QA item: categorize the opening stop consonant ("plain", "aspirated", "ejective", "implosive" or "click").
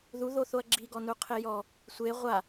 click